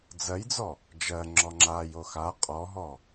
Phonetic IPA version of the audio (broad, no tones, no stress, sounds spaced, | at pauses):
d͡z ɜ j d͡z ɔ | d͡ʒ ɜ ŋ͡ǁ ɔ ŋ͡ǁ a j o x a qʼ ɔ ɦ ɔ